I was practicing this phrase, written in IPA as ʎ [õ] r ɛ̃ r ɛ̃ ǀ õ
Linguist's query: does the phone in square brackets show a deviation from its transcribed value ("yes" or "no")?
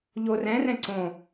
yes